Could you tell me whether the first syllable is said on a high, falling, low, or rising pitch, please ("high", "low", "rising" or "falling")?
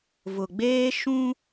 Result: low